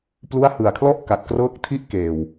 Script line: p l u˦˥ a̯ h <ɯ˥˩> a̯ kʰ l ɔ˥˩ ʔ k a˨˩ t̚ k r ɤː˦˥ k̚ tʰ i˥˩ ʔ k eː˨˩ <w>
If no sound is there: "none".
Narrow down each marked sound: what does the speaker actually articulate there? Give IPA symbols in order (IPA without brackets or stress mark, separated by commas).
ɯ˨˩, w